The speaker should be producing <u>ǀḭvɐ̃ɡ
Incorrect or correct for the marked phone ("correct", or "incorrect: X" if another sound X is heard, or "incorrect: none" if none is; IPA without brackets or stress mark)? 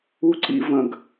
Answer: correct